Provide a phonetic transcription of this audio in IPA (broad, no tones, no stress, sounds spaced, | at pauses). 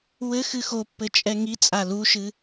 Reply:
w ɘ x ɨ x o pː ɘ t͡ʃʼ ɛ ŋ i t͡sʼ a l u ʃ ɨ